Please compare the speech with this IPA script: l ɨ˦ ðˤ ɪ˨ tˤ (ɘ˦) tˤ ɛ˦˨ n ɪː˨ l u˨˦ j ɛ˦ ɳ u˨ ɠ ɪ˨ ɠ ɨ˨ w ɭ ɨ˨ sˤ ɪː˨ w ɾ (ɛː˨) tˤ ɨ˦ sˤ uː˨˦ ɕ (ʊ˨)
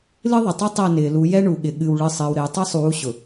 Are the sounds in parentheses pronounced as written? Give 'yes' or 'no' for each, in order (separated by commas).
yes, no, yes